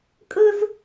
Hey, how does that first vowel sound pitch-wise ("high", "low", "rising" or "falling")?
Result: high